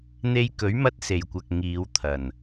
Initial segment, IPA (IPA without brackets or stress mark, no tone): n̪